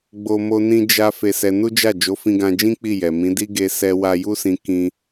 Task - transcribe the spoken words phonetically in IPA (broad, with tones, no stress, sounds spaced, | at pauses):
ɡ͡b o˦ m o˦ n ĩ˦ d͡ʒ a˦ f e˧ s ɛ˧ n u˦ d͡ʒ a˦˨ d͡ʒ o˨˦ f ĩ˧ ɡ ã˧ d͡ʒ ĩ˦ k͡p i˦˨ j ɛ˨ m ĩ˨˦ d i˦ ɡ e˧ s ɛ˧ w a˧ j u˦ s ĩ˧ k ĩ˧